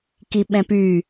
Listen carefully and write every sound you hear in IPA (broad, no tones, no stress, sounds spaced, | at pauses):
k i ɓ ɛ̃ p y